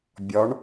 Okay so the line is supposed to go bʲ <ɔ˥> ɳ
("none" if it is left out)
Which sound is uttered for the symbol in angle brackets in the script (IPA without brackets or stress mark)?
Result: ɔ˨˥